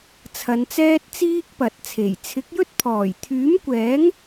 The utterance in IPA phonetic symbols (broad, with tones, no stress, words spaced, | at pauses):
t͡sʰɐ˨˧nt͡sɛː˥t̚t͡siː˥k̚ pɐ˨t̚t͡sʰe˨˩j t͡sʰɪ˨˥k̚jɵ˥t̚pʰɔː˨˩j t̪ʰyː˨˥mkʷɛː˨˥ŋ